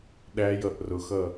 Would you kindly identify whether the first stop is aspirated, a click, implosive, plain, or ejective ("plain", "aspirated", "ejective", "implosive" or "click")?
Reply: implosive